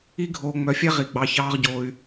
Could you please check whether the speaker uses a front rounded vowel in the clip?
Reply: yes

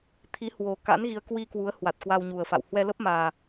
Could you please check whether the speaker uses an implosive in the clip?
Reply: no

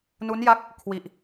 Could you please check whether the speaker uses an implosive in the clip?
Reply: no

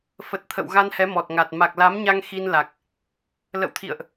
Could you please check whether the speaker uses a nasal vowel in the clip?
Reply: no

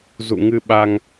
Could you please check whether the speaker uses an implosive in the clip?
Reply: yes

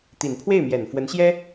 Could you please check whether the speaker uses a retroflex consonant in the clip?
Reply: no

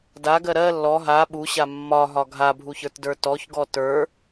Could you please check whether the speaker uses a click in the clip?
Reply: no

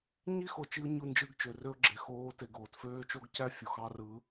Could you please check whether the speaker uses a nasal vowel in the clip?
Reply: no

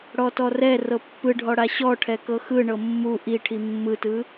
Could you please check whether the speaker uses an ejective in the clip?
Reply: no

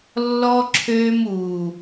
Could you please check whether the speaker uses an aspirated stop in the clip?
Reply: yes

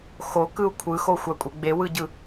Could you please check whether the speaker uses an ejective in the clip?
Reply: yes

